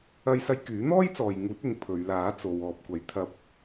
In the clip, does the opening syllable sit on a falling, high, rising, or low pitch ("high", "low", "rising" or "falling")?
high